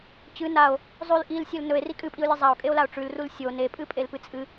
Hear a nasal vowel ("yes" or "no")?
no